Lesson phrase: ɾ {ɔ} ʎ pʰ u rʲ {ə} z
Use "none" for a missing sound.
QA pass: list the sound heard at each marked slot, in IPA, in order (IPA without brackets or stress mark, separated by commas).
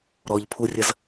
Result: ɔ, ə